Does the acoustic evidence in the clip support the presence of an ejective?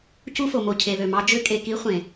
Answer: yes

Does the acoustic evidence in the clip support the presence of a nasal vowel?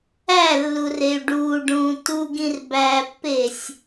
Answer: yes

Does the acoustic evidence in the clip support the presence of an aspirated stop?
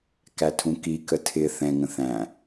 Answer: yes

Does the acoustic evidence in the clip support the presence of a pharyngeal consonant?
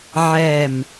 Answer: yes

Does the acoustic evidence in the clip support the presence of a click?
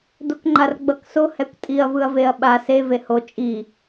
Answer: yes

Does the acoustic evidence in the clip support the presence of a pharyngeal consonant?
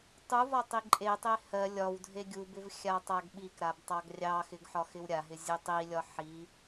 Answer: yes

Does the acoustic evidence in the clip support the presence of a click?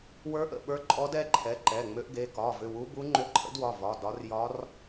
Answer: yes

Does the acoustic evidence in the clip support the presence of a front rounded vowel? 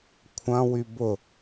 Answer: yes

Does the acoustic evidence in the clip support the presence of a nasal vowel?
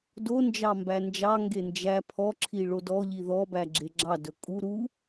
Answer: no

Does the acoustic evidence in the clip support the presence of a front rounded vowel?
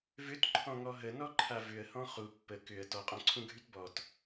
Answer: yes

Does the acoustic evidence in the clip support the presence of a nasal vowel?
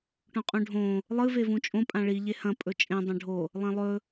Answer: yes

